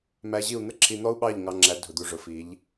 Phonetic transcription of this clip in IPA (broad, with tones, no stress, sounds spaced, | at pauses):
m æ˧ ʑ i˦˨ u̯ n̪ ə˦ ǁʰ i˧ n̪ ɔ˦ u̯ ɓ ɑ˦˨ ʎ ŋ ɑ˧ ŋ͡ǁ æ˨˦ dʱ ʊ˨ d̪ u˨ ʐ ʊ˨ f i˨˦ ʎ